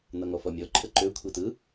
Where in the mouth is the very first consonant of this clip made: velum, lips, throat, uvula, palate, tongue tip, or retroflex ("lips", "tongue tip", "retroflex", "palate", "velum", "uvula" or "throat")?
tongue tip